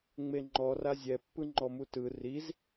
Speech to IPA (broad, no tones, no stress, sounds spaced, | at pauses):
ŋ͡m e ŋ͡ǃ ɔ r a zʲ ɛ pː ɯ ŋ͡ǃ ɔ m u t ɯ r i z